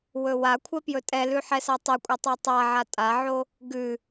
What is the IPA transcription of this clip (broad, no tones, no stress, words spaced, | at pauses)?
wɵwakʷʰɛ pjɵtʼɛlʉ ħɛsatˤɛkʷʼɛ tˤotˤaʕa tʼaʕo | ɡʉ